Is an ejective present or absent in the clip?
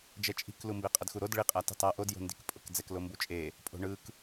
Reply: present